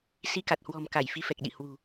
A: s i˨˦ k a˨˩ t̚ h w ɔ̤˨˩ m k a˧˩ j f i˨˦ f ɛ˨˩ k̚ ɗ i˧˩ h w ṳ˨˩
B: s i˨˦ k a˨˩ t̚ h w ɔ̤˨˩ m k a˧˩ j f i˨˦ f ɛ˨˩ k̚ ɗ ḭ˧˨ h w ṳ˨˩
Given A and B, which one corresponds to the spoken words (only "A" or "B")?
B